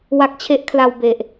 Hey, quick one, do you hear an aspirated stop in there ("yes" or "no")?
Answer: yes